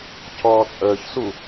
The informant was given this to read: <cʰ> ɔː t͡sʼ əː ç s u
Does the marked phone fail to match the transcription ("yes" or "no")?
no